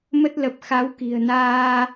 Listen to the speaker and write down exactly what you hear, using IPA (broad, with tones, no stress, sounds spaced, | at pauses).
m ə˦˥ t̚ l ə˨˩ p̚ x a˨˦ w k i̤˨˩ ə̯ n aː˧